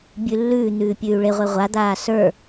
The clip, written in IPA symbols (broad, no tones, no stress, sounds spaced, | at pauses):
bʲ ʉ lː ʉː n̪ ʉː pʲ ʉː y̯ ɭ e ʁʷ e ʁʷ a d̪ aː s ə˞